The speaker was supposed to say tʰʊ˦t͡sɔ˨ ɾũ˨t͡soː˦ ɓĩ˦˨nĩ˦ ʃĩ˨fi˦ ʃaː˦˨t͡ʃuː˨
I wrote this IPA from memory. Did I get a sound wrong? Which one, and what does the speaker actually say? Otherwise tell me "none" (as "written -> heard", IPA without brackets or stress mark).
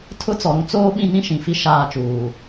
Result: none